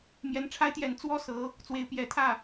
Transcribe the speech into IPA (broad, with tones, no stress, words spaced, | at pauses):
mjɛ˧˥nʈ͡ʂʰa˥ɪ̯t̪jɛ˧˥n t͡swɔ˥sɤ˧˥ | t͡swe˧˥ɪ̯pjɛ˧˥ t̪ʰä˥˩